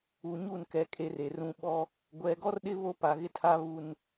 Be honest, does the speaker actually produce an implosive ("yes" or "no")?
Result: yes